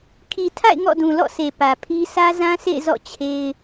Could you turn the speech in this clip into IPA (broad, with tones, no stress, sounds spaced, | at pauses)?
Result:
kʰ i˨ tʰ a̰˦˨ ɪ̯ ŋ ɔ̰˦˨ d ũ˨ l ɔ̰˦˨ sʰ e˨ p ä˨ pʰ i˦ sʰ ä˦ z ã˦ s ḛ˦˨ ɪ̯ z ɔ̰˦˨ t͡ɕʰ e˦ ɪ̯